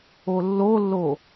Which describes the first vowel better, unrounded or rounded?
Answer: rounded